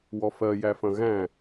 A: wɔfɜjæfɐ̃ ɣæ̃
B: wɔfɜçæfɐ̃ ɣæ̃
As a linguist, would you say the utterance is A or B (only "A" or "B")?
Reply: A